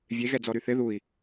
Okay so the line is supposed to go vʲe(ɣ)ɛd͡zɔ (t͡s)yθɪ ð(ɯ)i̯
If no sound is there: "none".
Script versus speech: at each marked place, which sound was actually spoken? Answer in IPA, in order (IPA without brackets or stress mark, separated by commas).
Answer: ɣ, ɾ, u